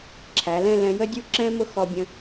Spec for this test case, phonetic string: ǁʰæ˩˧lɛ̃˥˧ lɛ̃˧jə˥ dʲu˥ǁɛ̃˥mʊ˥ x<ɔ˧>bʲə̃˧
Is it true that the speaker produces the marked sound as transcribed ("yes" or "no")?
yes